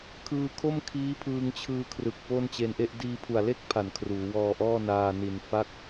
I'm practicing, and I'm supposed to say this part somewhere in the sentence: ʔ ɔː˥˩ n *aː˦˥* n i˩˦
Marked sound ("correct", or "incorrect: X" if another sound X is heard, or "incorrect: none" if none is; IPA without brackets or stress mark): incorrect: aː˧